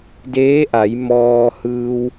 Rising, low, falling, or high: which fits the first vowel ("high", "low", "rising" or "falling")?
rising